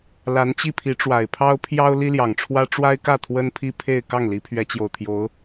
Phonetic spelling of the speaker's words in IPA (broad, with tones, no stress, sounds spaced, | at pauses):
l a˧˥ n t͡ɕ i˥˩ pʰ i˧˥ ʈ͡ʂ w a˨˩ ɪ̯ pʰ ɑ˥ ʊ̯ pʰ j ɑ˥ ʊ̯ l i˥ l j ɑ˨˩ ŋ ʈ͡ʂʰ w ä˥ ʈ͡ʂ w a˥ ɪ̯ k ä˥˩ t̪ʰ w ə˥ n pʰ i˥ pʰ e˥˧ ɪ̯ k ɑ˥˩ ŋ l i˧˥ pʰ ɥ ɛ˧˥ t͡ɕ j o˨˩ ʊ̯ t̪ʰ j o˧˥ ʊ̯